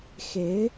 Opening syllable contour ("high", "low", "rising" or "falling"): rising